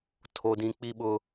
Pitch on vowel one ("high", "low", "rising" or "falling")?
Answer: high